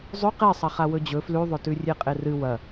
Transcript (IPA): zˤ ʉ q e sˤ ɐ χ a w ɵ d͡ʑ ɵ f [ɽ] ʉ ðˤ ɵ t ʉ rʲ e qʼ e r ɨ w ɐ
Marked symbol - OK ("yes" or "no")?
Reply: no